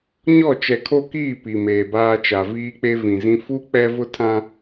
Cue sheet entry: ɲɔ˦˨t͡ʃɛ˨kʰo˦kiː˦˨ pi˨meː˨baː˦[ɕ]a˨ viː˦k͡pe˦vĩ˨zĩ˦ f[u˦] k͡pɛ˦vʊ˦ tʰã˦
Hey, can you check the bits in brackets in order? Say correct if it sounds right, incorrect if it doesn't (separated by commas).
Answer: incorrect, correct